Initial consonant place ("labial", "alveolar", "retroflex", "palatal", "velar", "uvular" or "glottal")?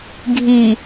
velar